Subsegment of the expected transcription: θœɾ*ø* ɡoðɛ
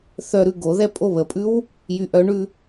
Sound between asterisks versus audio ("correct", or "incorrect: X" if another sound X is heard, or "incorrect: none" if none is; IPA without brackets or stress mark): incorrect: ʉ